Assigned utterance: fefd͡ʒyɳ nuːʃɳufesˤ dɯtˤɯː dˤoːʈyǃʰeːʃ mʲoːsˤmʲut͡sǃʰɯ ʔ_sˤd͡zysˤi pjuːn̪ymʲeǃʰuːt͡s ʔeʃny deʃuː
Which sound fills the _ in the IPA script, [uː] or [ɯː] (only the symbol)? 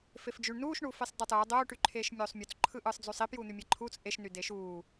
ɯː